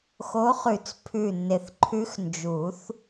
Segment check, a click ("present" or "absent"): present